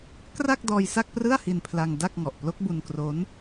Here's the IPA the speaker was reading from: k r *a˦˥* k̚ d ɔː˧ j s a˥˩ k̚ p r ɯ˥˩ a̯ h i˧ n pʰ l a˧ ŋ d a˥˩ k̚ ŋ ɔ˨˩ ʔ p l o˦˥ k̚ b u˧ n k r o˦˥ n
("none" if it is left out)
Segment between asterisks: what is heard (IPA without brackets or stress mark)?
a˥˩